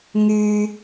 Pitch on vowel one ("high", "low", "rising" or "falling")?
high